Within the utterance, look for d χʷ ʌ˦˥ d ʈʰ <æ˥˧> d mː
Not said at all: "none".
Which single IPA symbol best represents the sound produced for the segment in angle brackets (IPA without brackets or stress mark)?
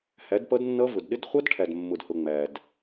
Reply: æ˨